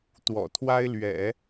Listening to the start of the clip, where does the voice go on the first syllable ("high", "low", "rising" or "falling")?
low